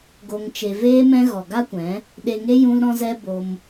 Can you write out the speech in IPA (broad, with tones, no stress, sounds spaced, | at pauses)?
ɡ o˨ ŋ t͡ʃ e˨ v eː˧ m ɛ̃˧ ɣ ɔ˨ ɡ a˦ kʷ ɛ̃˨˦ | ɗ e˨ ŋ e˧ j ũ˧ l ɾ ɔ̃˧ z ɛ˧ b o˧ m